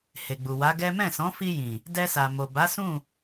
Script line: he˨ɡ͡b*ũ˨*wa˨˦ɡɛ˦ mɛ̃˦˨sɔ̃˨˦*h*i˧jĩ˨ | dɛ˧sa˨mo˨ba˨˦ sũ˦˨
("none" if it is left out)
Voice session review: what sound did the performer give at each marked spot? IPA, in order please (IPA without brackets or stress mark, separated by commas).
u˨, f